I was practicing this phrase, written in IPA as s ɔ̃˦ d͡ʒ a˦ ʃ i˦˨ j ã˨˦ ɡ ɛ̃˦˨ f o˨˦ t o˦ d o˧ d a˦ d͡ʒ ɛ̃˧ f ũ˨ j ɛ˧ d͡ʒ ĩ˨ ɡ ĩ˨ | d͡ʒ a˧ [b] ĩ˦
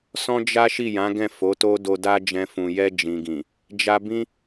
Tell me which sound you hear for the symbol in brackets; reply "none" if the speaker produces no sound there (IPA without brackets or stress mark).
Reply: b